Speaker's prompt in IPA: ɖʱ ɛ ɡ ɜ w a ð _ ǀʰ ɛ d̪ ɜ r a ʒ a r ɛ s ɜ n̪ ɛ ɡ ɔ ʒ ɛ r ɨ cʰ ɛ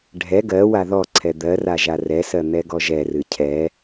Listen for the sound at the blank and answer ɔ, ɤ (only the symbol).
ɔ